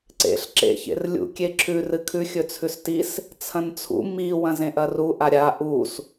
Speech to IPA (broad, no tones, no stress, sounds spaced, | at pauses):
ǀ ḛ ɬ ǁ ḛ ç ḛ r lʲ ṵ kʲ e ǁʰ ʉ r ɨ kʰ ʉ xʲ ɵ t͡sʰ ʉ s t i s | t͡sʰ ɐ̃ n t͡sʰ ṵ m i w ɐ̃ z ẽ ʔ ɐ r u ʔ a ɾʲ a ʔ u s